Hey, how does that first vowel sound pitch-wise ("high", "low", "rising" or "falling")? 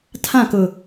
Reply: falling